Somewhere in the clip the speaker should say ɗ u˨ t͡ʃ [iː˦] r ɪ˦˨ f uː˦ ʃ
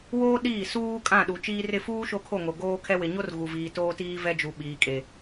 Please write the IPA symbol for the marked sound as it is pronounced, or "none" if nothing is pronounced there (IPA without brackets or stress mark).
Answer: iː˦